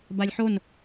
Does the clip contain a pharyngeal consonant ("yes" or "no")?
yes